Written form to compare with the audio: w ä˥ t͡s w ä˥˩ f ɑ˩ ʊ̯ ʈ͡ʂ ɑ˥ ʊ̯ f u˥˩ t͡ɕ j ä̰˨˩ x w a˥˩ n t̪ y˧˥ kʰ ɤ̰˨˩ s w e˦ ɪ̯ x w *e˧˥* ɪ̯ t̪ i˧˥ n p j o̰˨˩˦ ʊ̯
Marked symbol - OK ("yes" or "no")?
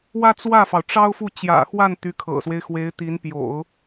yes